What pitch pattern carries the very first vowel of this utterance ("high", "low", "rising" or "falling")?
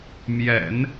low